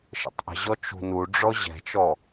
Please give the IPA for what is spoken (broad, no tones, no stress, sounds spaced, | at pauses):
ʃ ə̰ tˤ ʔ ə̤ ʑ ɔ t͡ʃ ṳ n u ɖ͡ʐ ɔ ʑ ɛ̤ t͡ʃ ɔ